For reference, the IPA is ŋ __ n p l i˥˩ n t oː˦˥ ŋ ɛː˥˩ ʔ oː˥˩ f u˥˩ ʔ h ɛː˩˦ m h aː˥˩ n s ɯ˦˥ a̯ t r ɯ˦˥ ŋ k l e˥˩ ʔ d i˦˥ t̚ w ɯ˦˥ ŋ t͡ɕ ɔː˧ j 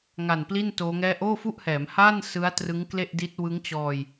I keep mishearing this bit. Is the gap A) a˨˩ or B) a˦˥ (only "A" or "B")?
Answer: A